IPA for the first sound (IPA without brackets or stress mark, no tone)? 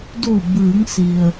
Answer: d